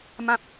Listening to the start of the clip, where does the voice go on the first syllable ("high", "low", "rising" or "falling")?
high